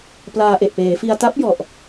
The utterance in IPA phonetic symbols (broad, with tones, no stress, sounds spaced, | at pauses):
p l aː˧ ʔ e˨˩ ʔ p eː˩˦ f i˧ a̯ t a˦˥ p̚ j ɔ˨˩ ʔ